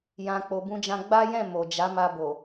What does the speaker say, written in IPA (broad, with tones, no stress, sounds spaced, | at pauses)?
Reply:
j ã˨ k͡p o˨ b ũ˧ d͡ʒ ã˧ ɡ͡b a˦ j ɛ̃˦˨ m o˨ d͡ʒ a˨˦ m a˧ b o˨